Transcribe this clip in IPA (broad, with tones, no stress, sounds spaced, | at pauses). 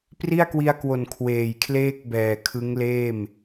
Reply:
p r i˥˩ a̯ k w i˧ a̯ k w o˨˩ n kʰ w eː˨˩ j kʰ l eː˥˩ k̚ b ɛː˨˩ kʰ ɯ˦˥ ŋ l eː˥˩ m